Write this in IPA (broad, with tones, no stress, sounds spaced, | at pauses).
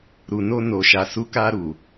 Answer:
ɾ u˨ n o˧ n o˨ ʃ a˨ s u˨˦ k a˧ ɾ u˨